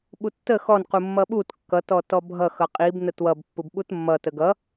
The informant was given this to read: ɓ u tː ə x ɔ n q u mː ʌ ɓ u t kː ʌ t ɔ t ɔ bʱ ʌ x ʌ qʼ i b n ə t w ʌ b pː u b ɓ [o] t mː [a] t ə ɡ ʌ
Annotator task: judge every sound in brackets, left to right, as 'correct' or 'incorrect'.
incorrect, incorrect

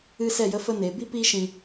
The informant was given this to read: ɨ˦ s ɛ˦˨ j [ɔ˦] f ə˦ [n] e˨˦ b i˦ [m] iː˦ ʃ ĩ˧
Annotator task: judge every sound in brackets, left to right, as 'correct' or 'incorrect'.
incorrect, correct, incorrect

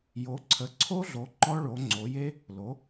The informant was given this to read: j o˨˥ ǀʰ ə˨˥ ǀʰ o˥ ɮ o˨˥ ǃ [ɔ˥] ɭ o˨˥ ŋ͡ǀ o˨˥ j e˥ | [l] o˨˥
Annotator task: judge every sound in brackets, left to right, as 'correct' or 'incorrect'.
correct, correct

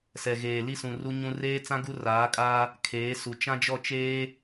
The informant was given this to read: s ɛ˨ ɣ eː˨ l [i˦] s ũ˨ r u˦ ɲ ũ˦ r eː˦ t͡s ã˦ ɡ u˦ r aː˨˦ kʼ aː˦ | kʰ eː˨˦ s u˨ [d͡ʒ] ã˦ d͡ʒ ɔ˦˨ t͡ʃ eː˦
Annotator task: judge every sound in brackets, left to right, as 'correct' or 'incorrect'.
correct, incorrect

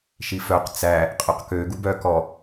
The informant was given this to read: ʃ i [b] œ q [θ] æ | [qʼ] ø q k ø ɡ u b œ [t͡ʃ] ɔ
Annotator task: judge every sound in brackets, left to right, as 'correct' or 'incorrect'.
incorrect, incorrect, correct, incorrect

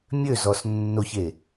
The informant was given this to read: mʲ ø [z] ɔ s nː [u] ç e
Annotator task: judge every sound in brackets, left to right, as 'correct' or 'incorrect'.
correct, incorrect

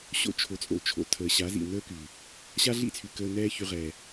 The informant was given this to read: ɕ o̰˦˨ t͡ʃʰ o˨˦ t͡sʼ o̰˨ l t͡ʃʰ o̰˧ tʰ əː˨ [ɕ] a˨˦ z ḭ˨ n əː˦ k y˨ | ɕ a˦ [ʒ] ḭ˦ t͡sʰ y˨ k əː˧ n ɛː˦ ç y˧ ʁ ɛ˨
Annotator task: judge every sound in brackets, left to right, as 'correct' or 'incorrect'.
correct, incorrect

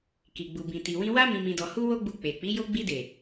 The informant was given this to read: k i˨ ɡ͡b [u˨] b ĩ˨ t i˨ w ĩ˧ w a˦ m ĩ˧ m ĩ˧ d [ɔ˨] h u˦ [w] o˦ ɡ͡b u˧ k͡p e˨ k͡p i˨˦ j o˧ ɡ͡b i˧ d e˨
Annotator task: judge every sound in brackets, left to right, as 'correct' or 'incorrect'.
correct, incorrect, correct

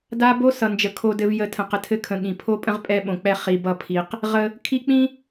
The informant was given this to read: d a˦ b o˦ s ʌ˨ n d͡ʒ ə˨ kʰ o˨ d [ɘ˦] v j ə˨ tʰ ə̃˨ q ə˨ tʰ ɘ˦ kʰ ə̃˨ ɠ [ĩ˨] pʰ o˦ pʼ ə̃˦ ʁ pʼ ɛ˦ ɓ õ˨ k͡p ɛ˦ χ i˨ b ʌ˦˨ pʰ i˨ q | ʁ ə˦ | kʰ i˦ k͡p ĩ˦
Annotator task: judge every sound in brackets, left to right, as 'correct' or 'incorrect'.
incorrect, correct

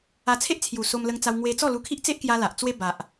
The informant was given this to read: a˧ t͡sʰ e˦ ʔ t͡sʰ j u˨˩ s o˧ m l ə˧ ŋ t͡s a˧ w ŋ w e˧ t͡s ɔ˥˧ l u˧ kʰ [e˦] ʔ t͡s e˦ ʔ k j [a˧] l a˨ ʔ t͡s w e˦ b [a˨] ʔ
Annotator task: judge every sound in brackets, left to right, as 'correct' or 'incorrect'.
incorrect, correct, correct

